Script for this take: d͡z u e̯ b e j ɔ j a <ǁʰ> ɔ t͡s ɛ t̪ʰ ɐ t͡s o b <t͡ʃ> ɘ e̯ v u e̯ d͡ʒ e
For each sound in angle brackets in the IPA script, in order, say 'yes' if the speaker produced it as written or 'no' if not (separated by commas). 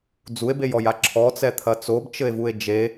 yes, yes